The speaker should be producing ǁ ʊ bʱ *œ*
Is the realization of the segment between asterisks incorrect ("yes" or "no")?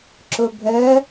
no